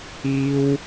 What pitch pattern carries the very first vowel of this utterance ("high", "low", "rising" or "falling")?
high